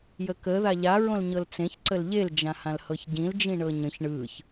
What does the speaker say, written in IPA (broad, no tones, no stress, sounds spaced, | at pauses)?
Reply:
j ə k ə ð a ʎ a ɹ õ l ɲ ɤ l t͡s ẽ ç ǀ ə l ʎ e l d͡ʒ ã h ã l h ɤ ç ɟ ĩ l d͡ʒ ĩ ɳ ɤ ɲ ə̃ ç ɳ ɯ ç